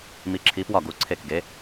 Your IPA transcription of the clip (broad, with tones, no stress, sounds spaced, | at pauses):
m i˨˦ ǁʰ i˨˦ p w ɒ˧˩ ɡ u˨˦ ǀʰ e˧˩ k ɡ e˨˦